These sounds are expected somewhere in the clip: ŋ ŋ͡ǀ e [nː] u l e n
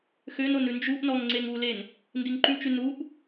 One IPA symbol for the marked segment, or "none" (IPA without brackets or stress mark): ŋ